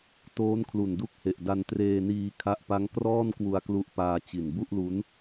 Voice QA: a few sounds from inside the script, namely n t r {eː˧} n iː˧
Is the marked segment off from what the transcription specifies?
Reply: no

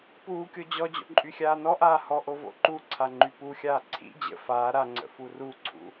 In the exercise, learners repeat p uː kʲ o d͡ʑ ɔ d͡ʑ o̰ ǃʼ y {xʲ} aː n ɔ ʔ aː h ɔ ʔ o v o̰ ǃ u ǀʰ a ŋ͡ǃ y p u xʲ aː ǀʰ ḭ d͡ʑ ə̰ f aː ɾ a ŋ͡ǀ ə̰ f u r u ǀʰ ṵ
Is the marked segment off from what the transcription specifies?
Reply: no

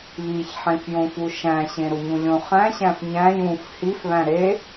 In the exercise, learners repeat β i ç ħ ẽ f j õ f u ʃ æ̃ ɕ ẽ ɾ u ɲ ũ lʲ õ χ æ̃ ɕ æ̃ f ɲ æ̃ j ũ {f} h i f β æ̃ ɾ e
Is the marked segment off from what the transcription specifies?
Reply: no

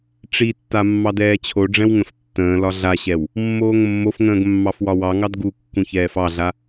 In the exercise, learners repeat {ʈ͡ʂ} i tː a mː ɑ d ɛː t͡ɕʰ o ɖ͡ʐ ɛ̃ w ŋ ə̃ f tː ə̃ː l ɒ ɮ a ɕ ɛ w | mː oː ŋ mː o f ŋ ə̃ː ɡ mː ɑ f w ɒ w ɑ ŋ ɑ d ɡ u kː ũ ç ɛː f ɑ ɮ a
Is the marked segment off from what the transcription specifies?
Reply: no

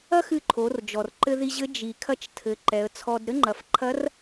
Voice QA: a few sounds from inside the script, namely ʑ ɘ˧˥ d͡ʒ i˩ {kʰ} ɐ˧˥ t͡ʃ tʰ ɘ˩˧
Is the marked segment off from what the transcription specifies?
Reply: no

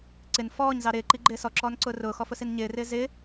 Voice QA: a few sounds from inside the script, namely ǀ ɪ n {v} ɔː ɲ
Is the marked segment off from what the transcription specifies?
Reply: yes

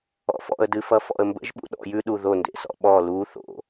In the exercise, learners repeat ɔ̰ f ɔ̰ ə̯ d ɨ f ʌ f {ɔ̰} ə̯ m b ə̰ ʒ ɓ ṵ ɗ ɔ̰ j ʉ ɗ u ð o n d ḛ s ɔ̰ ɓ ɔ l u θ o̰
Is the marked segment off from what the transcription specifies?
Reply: no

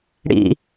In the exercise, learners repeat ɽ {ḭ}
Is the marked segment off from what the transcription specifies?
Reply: no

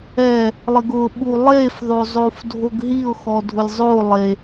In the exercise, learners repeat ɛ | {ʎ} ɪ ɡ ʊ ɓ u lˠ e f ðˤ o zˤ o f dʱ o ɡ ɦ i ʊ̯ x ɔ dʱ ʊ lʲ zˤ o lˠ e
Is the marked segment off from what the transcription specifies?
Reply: yes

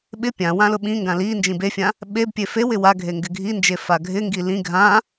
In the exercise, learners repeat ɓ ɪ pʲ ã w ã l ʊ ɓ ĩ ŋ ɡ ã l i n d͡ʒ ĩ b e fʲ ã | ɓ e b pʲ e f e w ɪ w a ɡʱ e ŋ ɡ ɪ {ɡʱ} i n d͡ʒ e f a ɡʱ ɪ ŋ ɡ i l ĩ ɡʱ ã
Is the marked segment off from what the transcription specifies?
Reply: no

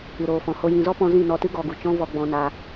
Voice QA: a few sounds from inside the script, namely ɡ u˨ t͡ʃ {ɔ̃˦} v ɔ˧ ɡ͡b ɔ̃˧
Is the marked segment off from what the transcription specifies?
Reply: no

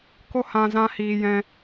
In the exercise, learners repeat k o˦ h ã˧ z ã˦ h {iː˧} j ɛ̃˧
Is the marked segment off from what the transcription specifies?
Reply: no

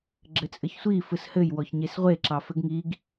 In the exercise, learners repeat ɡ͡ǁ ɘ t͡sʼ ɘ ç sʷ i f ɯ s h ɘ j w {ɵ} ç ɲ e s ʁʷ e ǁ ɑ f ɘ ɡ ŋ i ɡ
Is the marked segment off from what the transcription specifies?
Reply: yes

